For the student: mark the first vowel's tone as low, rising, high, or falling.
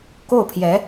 falling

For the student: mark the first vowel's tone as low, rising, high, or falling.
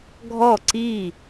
falling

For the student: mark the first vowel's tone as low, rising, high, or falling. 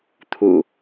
low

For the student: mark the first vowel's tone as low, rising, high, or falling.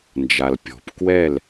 low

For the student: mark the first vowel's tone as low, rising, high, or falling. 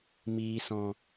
low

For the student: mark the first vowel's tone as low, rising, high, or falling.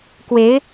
rising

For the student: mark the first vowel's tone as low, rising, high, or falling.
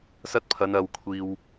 high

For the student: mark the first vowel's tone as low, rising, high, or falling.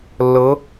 rising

